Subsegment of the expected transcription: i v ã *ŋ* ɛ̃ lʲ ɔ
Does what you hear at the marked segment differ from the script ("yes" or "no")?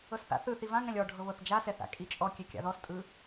no